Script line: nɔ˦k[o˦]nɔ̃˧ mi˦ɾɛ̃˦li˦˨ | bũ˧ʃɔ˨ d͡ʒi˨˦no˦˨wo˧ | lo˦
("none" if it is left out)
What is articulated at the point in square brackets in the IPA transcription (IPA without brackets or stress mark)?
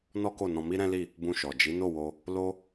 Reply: o˦˨